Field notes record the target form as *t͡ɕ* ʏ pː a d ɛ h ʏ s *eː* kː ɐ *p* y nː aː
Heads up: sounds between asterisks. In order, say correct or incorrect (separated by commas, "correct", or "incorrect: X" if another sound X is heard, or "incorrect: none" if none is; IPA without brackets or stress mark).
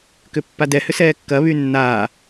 incorrect: k, incorrect: ɛː, incorrect: β